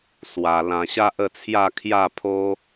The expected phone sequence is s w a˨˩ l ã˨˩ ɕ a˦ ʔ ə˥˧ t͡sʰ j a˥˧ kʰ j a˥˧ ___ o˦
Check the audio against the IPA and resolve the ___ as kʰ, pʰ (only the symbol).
pʰ